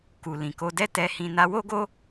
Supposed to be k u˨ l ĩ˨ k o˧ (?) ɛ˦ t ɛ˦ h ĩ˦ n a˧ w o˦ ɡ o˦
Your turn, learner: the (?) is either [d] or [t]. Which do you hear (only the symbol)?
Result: d